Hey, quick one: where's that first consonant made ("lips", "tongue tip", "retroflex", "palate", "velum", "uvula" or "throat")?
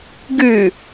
velum